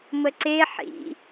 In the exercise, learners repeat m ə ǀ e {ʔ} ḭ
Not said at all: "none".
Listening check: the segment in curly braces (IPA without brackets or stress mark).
ħ